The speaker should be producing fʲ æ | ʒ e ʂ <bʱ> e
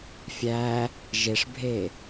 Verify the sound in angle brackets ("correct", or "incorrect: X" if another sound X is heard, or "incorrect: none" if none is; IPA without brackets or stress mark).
correct